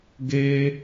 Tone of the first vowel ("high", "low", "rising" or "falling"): high